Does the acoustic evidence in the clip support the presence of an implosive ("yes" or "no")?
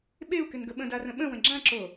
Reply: yes